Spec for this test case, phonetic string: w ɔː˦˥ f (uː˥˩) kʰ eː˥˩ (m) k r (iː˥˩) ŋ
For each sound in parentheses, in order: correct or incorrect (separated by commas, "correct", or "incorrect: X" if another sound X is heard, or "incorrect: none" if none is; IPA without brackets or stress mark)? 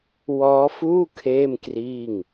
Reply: correct, correct, correct